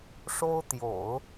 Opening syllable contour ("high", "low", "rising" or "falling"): high